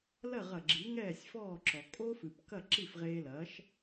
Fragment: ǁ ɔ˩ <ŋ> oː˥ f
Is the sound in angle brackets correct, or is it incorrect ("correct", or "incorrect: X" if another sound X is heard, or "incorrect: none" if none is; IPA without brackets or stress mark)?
incorrect: kʼ